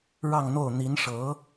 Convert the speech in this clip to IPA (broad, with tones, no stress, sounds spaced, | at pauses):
ɻ ɑ˥˧ ŋ n̪ o˥˩ ʊ̯ n̪ i˧˥ n ʂ ɤ˧˥